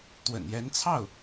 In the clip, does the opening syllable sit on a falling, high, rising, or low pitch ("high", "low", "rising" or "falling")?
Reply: low